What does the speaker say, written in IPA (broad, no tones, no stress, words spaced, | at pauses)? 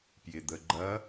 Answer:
pjɪd̪əɡ͡ǃɐ